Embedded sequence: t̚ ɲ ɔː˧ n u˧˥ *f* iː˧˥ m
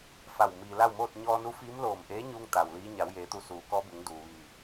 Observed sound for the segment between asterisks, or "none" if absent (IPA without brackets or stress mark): f